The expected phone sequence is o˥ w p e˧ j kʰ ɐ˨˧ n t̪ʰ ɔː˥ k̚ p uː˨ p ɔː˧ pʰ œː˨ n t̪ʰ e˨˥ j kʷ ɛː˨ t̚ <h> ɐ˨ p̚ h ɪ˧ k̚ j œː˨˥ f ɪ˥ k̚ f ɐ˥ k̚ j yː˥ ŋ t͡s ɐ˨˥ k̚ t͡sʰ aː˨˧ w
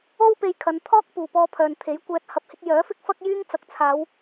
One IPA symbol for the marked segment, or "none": h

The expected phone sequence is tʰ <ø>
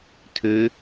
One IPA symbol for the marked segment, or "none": ø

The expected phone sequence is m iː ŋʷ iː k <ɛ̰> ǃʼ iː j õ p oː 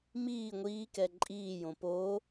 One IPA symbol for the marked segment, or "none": ɛ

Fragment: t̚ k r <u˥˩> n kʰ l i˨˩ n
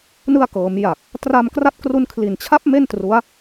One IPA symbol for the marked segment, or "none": u˧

